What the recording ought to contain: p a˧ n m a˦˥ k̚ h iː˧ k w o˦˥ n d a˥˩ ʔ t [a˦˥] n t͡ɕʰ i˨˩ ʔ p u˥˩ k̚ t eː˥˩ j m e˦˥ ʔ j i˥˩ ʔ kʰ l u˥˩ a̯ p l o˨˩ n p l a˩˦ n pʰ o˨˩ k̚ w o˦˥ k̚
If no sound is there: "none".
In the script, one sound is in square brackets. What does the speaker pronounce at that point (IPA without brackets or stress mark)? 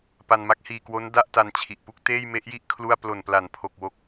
a˧